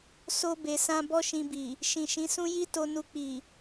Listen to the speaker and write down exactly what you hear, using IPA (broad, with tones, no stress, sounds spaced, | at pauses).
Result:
s o˧ b e˨ s ã˧ b ɔ˦ ʃ ĩ˧ b i˨ | ʃ ĩ˨ ʃ ĩ˨˦ s ũ˦ j i˦ t o˧ n u˧ k͡p i˨